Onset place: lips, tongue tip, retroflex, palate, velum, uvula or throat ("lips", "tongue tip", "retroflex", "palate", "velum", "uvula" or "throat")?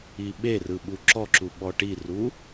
lips